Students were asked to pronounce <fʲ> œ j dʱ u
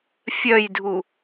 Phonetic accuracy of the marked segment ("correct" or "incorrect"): correct